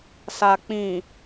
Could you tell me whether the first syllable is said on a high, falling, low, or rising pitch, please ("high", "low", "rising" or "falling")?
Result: low